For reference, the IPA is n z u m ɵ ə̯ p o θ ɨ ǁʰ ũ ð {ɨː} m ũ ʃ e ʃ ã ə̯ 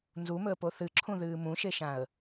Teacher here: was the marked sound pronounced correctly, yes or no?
yes